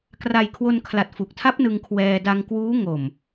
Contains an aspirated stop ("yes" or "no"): yes